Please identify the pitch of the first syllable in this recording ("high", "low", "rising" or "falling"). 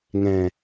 low